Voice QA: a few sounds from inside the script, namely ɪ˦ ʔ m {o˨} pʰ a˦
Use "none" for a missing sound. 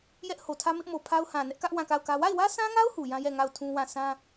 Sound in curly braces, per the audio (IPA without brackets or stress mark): o˨